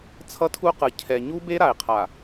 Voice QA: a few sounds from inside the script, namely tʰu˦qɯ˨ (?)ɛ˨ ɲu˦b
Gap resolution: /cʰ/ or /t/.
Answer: cʰ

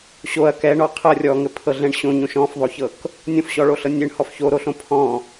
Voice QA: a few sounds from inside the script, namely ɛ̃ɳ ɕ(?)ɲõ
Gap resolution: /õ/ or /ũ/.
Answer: õ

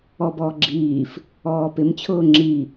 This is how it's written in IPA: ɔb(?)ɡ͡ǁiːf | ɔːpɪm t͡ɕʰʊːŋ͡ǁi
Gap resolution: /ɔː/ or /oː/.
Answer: ɔː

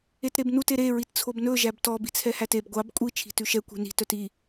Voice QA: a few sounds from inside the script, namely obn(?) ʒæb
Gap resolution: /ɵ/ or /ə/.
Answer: ɵ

